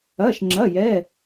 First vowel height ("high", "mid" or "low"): low